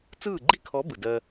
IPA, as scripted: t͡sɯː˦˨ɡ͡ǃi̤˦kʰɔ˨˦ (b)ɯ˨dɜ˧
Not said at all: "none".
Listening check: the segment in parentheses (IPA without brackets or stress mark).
b